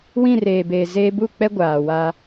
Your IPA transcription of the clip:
w ĩ˦˨ r eː˨ b eː˨ z eː˦ b u˦˨ k͡p ɛ˦ ɡʷ aː˨ w a˦

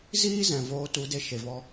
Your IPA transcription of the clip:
z iː˦ z ɛ̃˨ v oː˧ t u˨˦ d e˧ ʃ e˨ v ɔ˧

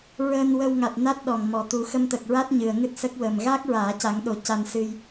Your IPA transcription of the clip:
ɹ əː˧ n w ə˧ w ŋ a˨˩ t̚ n a˦˥ t̚ ɗ ɔ˨˩ ŋ m ɔ˨˩ t̪ u˨˩˦ x ə˧ m t̪ ə˨˩ k̚ ɹ a˦˥ t̚ ɲ ɨ˨˩ ə̯ ŋ ɨ˦˥ t̚ s ə˦˥ k̚ w əː˨˩ m ɣ aː˦˥ k̚ ɹ aː˨˩˦ c a˨˩˦ ŋ ɗ o˨˩˦ c a˧ n s ɨ˧ j

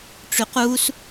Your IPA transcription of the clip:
ʈ͡ʂ y q u s

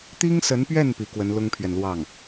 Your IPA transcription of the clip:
t̪ i˥ ŋ s ə˧˥ n p ɥ ɛ˥˩ n p i˧˥ k w ə˧˥ n l ʊ˥ ŋ pʰ ɥ ɛ˨ n l w ɑ˥˩ ŋ

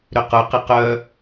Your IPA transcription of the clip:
ɾ ʏ q ʊ q ɪ q œ

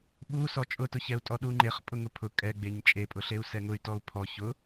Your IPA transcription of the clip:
ɓ u s ɔ t͡ʃʼ ʊ t ʊ ç ɛ u̯ tʼ ɔ ɗ u ŋ͡ǃ e χ pʼ ʊ ŋ ʊ pʰ ʊ kʼ ɛ ɡ͡b e ɲ t͡ʃʼ e pʼ ʊ ɬ e u̯ s ɛ ŋ ʊ y̯ t ɔ u̯ pʰ ɔ ç ʊ

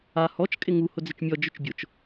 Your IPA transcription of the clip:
a h ɔ t͡ʃ kʼ ɪ ŋ u h ʊ d͡z ɪ t͡ʃ mʲ ɔ d͡ʒ ʊ t͡ʃ bʲ ʊ t͡ʃ

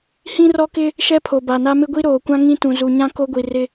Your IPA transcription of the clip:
h ĩ˦ r ɔ˦ k ɪ˦ | ʃ ɛ˦ pʰ o˨ b a˨ n a˦ m ɪ˦ ɡʷ i˦ ɾ oː˨ kʷ ã˦ ŋ ĩ˦ t ũ˨ z u˨ ɲ ã˦ k o˦ ɡʷ i˨ r ɪ˦

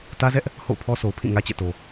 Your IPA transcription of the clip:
t ä˦ z ɛ˦ ʔ | h o̰˦˨ ʊ̯ pʰ ɔ˦ s o˨ ʊ̯ pʰ ĩ˦˨ ŋ ä˦ t͡ɕ ɛ̰˦˨ t o˨

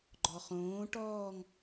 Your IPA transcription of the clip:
ɡ͡ǃ ɔ χ õː ʈ ɔː ŋ

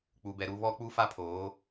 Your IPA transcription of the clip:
k͡p u˨ b ɛ˨ ɾ u˦ β ɔ˦ k͡p u˦ f a˦ pʰ oː˨˦

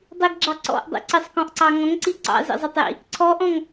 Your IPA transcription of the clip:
dˤ i ɡ ɡ͡ǁ ɑ ǀ ɔ̰ ʔ dˤ ḭ ǀ ɪ sˤ k ɔ̃ ʔ ǀ ɑ ŋ ɔ̃ ŋ ǀ i ǀ ɑ̰ z ḭ zˤ ɑ tˤ j ḭ | ǀʰ ɔ ʔ ɔ̃ ŋ

